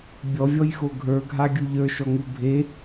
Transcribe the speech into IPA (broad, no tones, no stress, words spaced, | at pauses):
bʲɔvʲɔjxo ɡʱə˞ɡʱaɡʲu ʎə˞ʃɔŋu bʱe